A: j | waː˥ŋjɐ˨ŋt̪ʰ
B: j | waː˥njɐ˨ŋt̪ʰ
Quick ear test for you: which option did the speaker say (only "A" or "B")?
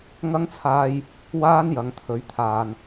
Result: B